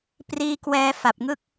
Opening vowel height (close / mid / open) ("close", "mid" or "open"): close